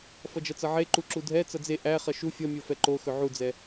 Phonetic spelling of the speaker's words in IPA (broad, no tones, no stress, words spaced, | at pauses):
fʌd͡ʒʌt͡sʌʕe ǃuǁudʱɛ t͡sʌd͡ze ʔæ χʌʃu fʲʌ mʲofɛǃo xɵʕud͡zɛ